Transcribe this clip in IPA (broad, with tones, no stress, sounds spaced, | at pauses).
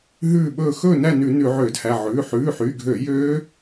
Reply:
ɦ ʉː˧˩ ɓ ɵː˧˩ x ɵː˥˨ n æ˥˨ n ʉ˧˩˧ n ʉ˧˩˧ ʕ øː˧˩˧ d h æ˩˧˩ ʕ ʉː˩˧˩ ħ ʉː˩˧˩ ħ y˩˧˩ ɡʱ ø˧˩˧ j øː˦˥